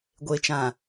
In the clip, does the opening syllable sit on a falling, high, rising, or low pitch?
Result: low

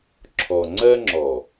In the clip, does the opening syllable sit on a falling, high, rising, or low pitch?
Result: low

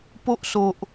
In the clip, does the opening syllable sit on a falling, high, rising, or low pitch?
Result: high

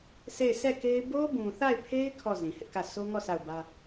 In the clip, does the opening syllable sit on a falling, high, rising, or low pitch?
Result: falling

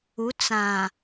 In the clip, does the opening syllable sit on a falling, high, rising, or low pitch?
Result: rising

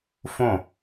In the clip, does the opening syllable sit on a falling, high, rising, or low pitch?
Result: falling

